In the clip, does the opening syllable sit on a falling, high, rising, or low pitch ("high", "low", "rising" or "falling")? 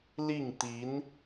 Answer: falling